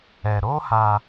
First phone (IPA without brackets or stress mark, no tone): ɛ